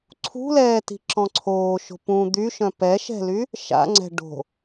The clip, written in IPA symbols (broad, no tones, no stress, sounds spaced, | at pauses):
ǀʰ ṳ l ɛː t i̤ ǁ ɔ̃ ǀʰ oː ʃ o̤ p ũ d̪ y ʃ œ̃ p ɛ ʃ ɛ̤ l y | ʃ a̰ ŋ͡ǀ ɛ̤ ɖ o̤